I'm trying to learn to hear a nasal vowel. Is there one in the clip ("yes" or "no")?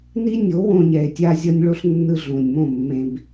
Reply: yes